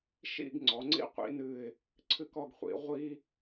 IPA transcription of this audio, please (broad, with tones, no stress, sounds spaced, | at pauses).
ʃ ḭ˥˧ ɡ ŋ͡ǀ ɔ˩˧ ŋ͡ǀ ḭ˥ qʷ ḭ˩˧ n ɨ˧˩ ɪ̯ | ǀʰ ɨ˥ k ɔ˧ ɡ χʷ ḭ˩˧ ʁʷ i˥